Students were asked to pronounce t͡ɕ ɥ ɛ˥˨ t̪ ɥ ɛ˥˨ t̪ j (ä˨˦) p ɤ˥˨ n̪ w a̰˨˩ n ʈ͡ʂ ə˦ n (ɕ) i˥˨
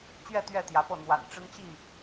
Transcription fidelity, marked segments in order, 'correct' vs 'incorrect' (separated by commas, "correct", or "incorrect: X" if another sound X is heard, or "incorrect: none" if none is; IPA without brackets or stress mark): correct, incorrect: t͡ɕ